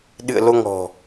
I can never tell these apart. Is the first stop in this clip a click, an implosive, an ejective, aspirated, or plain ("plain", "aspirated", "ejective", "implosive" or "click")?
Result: implosive